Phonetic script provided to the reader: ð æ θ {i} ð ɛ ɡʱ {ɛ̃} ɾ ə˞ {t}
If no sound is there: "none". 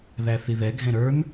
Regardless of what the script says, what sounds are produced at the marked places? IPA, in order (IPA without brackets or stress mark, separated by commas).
i, ɛ̃, n